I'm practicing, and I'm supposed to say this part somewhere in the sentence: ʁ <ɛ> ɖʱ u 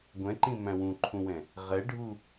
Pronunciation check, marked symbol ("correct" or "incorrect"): correct